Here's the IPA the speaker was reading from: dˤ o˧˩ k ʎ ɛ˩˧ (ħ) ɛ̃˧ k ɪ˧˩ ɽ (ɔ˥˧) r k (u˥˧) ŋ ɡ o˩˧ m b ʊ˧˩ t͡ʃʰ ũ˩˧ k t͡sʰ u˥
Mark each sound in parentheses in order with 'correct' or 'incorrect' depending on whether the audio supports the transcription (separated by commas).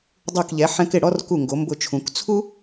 correct, correct, incorrect